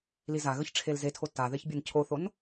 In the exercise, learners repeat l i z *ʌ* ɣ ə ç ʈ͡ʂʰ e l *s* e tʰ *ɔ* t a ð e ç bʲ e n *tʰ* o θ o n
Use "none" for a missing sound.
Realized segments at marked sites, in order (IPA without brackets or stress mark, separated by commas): a, z, o, cʰ